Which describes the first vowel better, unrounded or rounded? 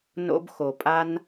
rounded